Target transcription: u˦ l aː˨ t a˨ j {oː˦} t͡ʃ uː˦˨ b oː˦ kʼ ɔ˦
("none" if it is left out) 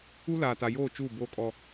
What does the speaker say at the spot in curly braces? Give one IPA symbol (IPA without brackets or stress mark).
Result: oː˦˨